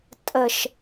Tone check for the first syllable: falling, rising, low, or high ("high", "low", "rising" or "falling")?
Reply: low